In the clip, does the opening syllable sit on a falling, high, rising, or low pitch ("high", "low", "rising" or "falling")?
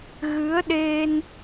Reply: rising